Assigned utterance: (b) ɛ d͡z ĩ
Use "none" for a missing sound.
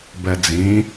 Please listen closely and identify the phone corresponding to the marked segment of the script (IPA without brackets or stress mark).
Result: b